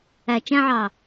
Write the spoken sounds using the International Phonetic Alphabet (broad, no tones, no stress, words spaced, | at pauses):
æ t͡ʃæ̃ʕɑː